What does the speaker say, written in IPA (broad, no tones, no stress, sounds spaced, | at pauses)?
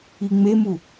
i ŋ͡m e m u